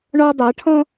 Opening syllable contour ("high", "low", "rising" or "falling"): high